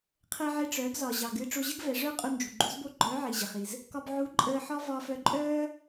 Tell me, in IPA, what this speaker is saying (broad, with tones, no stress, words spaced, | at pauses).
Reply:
qʰɛ˧ʕe˧ʈ͡ʂœː˩˧ɡzɒ˩ ʑɑ˩ ɡɨː˧ ʈ͡ʂo˧ʑə˥ɡvɛ˩˧ ʐœː˥qʼu˧nd͡ʒṳ˩ ɡ͡ǃṳ˧˥zbo˥ ɡ͡ǃœː˧˥ʕi˩ʑə˩χi˩z | kɒ˧bʕu˧˥ǃʼəː˧ħɒ˥ vɒː˧fœ˧ǃʼœː˥